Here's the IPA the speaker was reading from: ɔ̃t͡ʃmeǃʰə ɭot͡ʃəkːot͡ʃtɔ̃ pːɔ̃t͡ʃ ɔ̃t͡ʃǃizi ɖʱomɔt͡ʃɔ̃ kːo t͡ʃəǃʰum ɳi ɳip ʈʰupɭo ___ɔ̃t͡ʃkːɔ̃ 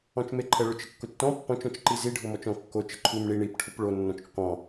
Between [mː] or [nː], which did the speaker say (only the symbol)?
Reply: nː